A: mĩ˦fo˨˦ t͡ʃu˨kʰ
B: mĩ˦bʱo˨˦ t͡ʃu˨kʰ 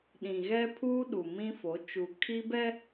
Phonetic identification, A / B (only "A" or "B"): A